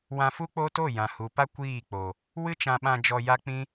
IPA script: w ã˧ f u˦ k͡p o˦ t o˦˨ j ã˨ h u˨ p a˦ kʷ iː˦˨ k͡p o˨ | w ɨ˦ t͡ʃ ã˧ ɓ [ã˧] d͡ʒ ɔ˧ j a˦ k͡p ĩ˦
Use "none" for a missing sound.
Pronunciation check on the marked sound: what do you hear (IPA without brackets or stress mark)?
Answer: ã˧